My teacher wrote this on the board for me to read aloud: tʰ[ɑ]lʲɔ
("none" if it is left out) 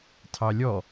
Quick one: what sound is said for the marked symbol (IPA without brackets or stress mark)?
ɑ